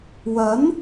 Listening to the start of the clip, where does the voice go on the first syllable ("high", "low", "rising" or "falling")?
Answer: rising